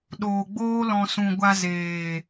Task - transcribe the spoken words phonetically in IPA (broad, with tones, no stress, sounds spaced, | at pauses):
ɗ oː˨ ɡ͡b oː˦ l ɔ̃˧ s ũ˨ ɡʷ a˧ z eː˨